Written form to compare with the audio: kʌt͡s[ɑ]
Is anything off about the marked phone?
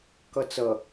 yes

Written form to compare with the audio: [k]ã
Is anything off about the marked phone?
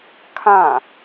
yes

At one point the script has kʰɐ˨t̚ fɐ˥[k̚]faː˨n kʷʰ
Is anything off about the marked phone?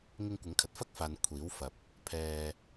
no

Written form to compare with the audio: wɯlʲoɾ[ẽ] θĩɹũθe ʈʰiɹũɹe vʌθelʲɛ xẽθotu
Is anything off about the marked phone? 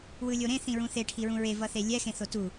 no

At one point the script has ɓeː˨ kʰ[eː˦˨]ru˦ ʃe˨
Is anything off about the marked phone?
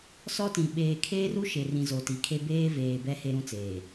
yes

